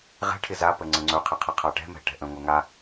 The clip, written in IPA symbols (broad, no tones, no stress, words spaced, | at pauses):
ʁɛ̤ʈʰɪ zapə ŋ͡ǀə̃ŋ͡ǀɵqʰɪqʰə qʰaʈɛ̤mɛ̤ ʈɛ̤ʔə̃ ŋʷɛŋa